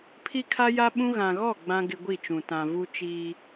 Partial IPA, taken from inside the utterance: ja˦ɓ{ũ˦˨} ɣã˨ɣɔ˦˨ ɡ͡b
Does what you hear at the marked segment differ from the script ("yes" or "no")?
yes